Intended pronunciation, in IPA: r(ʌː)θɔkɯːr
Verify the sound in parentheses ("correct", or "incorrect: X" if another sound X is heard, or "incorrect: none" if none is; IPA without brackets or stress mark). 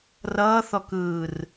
correct